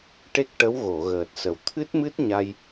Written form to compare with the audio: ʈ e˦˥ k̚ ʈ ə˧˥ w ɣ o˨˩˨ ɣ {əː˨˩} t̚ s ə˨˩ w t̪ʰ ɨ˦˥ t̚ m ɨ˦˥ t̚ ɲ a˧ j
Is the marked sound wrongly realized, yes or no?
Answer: no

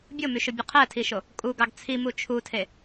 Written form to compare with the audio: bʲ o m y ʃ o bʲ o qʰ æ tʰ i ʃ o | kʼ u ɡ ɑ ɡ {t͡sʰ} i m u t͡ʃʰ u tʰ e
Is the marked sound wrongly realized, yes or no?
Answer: no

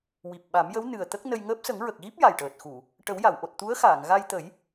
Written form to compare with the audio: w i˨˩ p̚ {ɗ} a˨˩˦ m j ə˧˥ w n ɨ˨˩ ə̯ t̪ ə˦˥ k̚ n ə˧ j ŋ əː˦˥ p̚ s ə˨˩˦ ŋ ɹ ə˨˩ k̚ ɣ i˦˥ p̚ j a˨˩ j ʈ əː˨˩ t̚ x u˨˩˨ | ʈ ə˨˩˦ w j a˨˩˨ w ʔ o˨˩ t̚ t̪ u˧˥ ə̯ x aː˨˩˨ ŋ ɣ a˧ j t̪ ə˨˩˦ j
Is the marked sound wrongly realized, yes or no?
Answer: yes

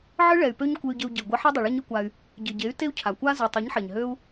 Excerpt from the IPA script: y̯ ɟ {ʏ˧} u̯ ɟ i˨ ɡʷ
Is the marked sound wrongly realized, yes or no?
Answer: yes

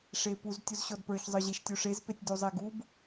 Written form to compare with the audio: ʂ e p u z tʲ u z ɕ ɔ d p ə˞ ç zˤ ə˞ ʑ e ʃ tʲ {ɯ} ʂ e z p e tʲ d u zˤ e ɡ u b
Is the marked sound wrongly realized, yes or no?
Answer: yes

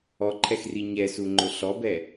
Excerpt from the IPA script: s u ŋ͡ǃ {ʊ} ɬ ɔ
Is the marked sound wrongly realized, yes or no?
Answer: no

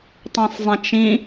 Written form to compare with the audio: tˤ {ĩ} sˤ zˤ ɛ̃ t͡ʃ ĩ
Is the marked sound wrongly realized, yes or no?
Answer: no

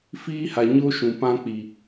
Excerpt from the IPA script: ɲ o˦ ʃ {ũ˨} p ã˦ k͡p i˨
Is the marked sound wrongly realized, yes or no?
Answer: no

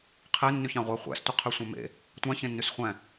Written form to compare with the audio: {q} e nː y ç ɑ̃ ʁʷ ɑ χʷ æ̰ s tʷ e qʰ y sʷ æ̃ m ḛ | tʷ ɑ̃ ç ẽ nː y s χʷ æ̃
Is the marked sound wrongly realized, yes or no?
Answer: yes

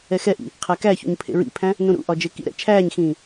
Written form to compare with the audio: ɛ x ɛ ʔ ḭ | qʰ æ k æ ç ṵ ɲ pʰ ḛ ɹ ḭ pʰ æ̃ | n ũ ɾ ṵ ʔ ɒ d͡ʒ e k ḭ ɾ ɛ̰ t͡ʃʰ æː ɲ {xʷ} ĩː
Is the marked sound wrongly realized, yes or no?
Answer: yes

